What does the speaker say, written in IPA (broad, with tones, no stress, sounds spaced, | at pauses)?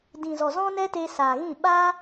d ĩ˨ z ɔ˨ z ɔ̃˧ n ɛ˦ t e˧ s aː˨ ɣ ĩ˦˨ ɓ aː˦